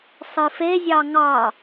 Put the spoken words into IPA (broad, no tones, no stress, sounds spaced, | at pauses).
sˤ ɨ f e zʲ ɑ ŋ ɑ